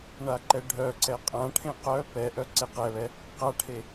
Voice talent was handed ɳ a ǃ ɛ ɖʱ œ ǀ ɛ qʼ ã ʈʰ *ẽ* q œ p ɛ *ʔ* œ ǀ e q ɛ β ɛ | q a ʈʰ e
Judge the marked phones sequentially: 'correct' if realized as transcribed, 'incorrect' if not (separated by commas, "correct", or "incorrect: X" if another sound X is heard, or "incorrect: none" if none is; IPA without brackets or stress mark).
correct, correct